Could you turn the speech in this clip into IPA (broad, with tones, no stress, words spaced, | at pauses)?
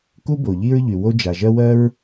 ku˥bo˩ ʎi˥ɹʎy˩ wo˥d͡ʒa˩ ʒɜ˥wɜ˥ɹ